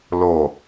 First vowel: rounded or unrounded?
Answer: rounded